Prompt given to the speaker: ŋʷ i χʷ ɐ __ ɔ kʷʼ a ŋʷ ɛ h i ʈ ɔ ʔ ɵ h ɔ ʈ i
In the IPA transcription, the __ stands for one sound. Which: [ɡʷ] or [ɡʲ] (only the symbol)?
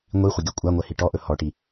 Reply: ɡʲ